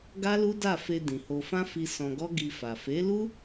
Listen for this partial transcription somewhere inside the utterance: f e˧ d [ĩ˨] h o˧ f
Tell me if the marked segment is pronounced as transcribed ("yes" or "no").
yes